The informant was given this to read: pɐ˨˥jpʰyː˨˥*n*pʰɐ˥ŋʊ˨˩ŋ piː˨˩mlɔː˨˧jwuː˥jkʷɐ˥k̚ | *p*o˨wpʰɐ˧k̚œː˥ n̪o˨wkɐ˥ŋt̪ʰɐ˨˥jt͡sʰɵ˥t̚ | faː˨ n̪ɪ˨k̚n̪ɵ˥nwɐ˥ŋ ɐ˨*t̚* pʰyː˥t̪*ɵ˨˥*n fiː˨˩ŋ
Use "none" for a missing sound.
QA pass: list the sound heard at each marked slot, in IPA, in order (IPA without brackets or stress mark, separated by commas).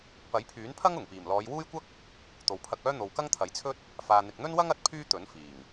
n, t̪, t̚, ɵ˨˥